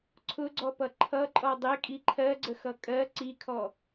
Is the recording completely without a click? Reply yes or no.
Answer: no